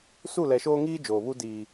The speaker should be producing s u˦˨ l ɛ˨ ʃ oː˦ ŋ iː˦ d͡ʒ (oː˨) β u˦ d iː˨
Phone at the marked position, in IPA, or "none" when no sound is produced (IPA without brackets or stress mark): oː˨